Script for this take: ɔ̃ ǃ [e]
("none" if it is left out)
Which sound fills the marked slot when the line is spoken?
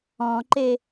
e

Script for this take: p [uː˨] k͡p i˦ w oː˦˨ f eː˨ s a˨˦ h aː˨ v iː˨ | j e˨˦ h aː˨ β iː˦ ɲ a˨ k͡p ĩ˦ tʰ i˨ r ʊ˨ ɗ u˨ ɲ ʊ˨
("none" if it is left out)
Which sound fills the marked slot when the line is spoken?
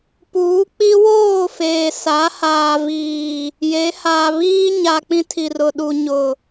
uː˨˦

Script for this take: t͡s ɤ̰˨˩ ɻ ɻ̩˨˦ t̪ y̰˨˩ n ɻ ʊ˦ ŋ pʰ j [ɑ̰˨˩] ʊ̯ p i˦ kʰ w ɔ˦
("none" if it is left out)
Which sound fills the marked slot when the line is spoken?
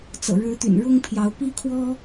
ɑ˨˦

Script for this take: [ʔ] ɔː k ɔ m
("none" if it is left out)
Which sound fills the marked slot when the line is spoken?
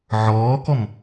ʕ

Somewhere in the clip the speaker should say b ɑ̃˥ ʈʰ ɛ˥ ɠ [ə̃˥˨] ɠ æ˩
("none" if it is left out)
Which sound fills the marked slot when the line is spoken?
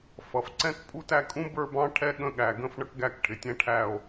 ə̃˥˨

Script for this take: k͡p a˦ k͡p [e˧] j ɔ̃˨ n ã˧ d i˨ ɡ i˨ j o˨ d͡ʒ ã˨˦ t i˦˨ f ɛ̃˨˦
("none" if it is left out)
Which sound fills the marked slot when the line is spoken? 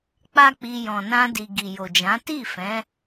i˧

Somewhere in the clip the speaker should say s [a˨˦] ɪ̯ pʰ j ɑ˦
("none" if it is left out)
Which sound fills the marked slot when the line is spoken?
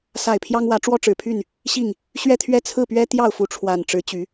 a˥˨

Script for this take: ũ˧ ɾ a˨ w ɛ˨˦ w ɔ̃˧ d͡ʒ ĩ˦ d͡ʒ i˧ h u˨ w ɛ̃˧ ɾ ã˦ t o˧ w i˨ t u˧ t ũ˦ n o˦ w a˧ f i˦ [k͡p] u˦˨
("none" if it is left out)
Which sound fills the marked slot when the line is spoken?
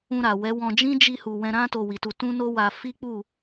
k͡p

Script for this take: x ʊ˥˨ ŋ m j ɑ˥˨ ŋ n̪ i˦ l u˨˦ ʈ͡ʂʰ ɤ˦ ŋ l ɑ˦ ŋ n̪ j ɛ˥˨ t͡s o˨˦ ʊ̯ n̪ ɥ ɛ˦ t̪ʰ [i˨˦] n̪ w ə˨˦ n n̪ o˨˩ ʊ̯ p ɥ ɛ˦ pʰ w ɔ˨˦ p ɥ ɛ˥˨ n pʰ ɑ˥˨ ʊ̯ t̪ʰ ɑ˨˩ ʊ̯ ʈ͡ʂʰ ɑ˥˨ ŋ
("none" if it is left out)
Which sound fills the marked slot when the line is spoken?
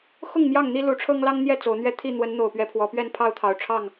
i˥˨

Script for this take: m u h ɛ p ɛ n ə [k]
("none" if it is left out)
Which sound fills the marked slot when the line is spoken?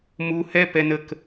k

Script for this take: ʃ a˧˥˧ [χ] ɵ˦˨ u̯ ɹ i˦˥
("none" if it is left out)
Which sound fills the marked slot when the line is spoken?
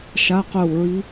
q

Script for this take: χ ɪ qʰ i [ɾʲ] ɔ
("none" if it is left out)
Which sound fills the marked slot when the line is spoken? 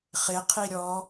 ɾʲ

